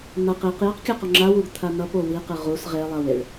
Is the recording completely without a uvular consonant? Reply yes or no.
no